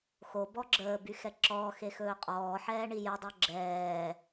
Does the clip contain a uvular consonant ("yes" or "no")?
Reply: yes